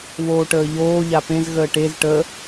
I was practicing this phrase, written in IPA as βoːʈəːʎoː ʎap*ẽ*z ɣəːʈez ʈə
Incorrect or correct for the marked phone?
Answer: correct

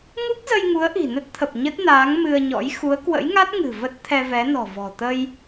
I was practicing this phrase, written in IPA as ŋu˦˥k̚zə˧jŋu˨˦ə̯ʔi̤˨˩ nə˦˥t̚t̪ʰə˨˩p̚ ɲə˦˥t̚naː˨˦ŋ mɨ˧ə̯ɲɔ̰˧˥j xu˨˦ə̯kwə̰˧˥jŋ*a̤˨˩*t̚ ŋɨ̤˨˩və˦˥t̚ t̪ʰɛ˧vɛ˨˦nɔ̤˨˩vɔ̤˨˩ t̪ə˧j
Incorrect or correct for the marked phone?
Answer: incorrect: a˦˥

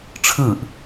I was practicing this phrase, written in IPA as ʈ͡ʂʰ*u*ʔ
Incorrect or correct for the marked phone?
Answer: incorrect: ɯ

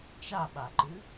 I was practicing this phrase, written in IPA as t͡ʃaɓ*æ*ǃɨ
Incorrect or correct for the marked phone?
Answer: incorrect: a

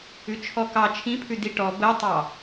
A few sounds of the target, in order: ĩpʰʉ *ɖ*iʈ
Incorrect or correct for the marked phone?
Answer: incorrect: d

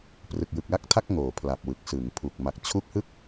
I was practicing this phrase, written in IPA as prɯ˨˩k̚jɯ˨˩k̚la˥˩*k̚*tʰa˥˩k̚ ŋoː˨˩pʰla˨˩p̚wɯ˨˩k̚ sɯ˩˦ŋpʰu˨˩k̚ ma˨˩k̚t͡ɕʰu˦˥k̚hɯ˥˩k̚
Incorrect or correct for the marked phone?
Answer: correct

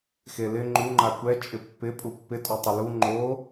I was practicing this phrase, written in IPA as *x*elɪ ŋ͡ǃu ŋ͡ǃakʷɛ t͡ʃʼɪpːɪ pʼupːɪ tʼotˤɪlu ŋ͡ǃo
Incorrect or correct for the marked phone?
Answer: correct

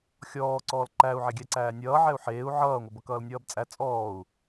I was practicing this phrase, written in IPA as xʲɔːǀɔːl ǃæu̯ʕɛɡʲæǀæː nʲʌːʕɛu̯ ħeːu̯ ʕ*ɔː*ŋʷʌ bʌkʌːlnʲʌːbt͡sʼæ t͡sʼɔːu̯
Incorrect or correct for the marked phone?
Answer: incorrect: ʌː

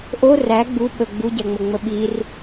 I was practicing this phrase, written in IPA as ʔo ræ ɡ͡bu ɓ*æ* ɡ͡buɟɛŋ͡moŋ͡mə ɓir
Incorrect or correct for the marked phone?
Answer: incorrect: ə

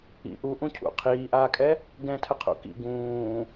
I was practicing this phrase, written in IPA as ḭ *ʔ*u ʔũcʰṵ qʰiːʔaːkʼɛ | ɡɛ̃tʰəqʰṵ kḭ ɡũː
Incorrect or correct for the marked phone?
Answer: correct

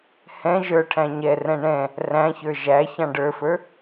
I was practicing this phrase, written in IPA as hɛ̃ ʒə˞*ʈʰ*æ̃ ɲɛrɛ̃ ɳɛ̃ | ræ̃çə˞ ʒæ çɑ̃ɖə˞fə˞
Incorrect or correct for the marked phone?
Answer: correct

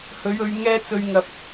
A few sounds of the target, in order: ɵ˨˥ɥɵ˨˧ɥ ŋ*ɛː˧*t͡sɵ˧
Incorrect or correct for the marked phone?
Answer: incorrect: ɛː˥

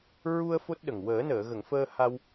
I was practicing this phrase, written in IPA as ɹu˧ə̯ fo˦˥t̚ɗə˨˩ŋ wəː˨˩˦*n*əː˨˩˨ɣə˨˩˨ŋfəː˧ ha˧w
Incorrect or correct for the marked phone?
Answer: correct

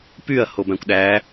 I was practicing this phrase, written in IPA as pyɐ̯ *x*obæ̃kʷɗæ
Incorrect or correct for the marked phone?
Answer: incorrect: h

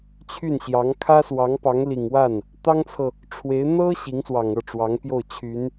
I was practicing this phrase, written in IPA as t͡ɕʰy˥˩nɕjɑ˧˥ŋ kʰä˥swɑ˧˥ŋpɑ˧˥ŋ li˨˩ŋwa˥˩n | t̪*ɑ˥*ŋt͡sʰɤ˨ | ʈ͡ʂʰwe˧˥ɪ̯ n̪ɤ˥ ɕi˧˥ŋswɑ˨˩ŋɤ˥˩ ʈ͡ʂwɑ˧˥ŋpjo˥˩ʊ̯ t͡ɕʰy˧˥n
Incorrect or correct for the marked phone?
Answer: correct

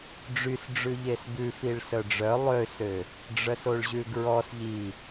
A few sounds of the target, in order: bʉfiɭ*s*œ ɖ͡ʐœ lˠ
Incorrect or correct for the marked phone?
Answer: correct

